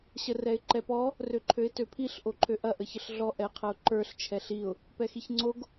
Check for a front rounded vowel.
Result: present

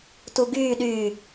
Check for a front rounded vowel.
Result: present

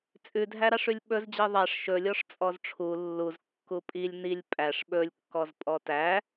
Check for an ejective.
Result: present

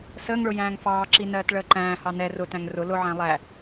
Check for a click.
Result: present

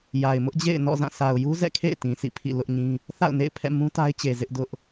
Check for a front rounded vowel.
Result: absent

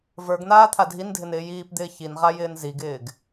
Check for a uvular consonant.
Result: present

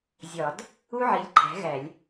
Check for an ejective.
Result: absent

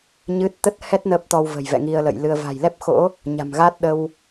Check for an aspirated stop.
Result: absent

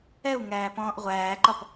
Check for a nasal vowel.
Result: present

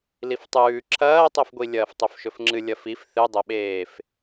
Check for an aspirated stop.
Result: present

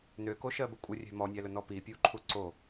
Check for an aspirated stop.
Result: present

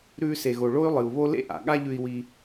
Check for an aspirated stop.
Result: absent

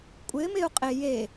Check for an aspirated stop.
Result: absent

